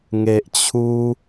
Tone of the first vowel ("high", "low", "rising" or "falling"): low